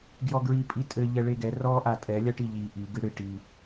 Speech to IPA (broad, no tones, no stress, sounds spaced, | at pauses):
ɡ j ɔ ɡ ɹ i pʼ i tʼ ɘ ʎ ɛ ɭ e ɡ ɛ r ɔ ʔ a tʼ ɛ lʲ a ʈ i ʎ i ʔ i ɡ ɨ ɽ ɨ ʈ i